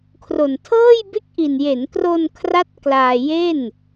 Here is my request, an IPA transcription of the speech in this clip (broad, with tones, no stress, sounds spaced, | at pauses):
kʰ r o˨˩ n tʰ ɤː˥˩ j b e˥˩ k̚ ʔ i˨˩ n j e˩˦ n k r o˧ n kʰ r a˥˩ t̚ k l aː˧ j e˥˩ n